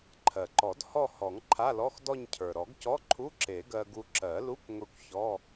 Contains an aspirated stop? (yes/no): yes